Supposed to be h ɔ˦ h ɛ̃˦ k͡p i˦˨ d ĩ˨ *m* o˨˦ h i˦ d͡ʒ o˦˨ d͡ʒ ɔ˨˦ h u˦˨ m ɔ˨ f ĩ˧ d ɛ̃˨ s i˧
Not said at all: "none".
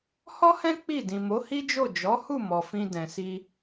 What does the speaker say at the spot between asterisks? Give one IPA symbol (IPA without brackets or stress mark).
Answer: m